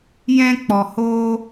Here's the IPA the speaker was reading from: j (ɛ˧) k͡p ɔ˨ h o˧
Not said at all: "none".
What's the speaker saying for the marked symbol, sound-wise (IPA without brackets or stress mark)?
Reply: ɛ̃˧